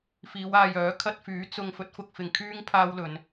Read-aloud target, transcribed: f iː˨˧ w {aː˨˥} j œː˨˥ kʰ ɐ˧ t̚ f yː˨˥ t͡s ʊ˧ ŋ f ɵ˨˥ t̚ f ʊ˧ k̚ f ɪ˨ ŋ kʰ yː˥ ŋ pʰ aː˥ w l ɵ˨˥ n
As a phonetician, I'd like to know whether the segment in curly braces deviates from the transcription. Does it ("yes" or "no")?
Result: yes